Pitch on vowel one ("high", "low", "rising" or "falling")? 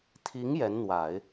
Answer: rising